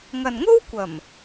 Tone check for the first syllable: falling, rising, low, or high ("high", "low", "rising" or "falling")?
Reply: low